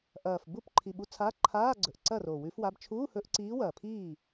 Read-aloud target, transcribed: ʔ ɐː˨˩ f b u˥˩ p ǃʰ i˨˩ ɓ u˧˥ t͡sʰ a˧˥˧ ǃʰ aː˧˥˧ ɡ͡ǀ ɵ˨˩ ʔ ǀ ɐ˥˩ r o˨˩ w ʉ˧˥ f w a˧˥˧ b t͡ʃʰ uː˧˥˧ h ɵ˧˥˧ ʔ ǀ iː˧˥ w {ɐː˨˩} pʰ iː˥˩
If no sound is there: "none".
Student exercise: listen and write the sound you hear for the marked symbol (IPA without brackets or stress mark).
ɐː˨˩